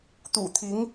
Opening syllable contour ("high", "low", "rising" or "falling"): low